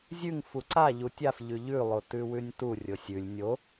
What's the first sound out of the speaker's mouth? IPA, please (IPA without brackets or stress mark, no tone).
zʲ